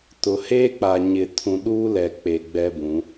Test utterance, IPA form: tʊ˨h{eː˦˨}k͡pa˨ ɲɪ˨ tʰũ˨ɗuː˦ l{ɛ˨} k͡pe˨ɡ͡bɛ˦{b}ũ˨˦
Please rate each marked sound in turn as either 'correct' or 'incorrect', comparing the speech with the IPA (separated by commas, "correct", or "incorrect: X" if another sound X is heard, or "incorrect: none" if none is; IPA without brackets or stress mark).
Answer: incorrect: eː˦, correct, correct